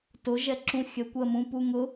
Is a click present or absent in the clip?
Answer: present